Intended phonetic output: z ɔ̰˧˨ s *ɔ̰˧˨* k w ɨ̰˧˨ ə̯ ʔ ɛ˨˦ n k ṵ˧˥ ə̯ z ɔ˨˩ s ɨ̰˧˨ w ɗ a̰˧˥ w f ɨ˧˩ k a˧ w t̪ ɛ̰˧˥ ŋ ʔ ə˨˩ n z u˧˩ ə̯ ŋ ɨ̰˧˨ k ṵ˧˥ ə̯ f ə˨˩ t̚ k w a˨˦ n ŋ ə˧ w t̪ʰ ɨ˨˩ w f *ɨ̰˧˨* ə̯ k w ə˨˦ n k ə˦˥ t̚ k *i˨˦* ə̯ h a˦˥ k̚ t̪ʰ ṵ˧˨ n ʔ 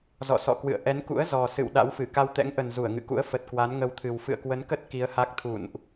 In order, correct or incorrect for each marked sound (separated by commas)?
correct, correct, correct